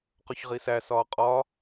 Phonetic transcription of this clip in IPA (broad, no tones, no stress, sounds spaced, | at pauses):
q o ç ʁ i s æ s ɒː qʼ ɒː